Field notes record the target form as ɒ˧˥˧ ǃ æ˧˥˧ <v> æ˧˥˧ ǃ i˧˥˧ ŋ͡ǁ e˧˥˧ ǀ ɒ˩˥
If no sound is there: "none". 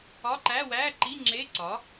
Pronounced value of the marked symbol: w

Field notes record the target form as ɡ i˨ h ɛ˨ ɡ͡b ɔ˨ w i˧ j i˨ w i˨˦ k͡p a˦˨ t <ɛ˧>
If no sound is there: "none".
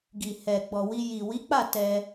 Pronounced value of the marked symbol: ɛ˧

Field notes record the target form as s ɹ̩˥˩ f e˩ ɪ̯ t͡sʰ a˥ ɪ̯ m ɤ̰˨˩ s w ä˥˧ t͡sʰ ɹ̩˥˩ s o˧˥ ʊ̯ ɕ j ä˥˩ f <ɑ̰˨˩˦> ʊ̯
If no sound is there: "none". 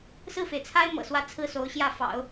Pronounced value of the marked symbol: ɑ̰˨˩˦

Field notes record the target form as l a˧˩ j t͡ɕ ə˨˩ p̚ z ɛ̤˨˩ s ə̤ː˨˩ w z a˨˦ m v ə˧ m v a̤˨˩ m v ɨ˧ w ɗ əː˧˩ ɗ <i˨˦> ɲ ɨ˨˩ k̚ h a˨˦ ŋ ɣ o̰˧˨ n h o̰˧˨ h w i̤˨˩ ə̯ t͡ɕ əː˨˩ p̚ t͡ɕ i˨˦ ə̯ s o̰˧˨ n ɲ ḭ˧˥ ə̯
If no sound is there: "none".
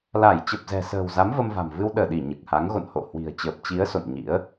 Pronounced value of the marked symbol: i˧˩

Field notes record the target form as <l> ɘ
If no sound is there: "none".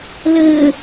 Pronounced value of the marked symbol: l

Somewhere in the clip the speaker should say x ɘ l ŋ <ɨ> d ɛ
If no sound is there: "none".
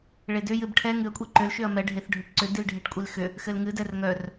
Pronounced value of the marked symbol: ɨ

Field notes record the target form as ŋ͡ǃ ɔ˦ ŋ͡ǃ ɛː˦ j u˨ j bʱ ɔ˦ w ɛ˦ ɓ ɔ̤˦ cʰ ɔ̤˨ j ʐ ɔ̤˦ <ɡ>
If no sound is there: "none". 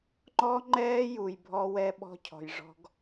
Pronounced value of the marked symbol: ɡ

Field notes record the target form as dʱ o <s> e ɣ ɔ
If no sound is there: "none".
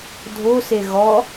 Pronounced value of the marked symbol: s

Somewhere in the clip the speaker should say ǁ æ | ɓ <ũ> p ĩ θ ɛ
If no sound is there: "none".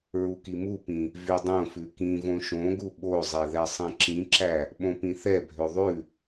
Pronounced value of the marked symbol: õ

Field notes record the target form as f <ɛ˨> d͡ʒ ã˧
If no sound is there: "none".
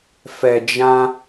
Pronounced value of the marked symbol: ɛ˨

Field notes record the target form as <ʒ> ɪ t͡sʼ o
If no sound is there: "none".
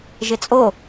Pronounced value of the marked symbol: ʒ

